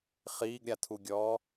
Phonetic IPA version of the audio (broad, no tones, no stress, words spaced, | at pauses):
χiːɡɾʲatʰuɡʲɔː